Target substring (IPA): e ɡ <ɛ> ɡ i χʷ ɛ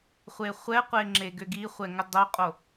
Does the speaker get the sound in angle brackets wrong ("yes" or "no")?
yes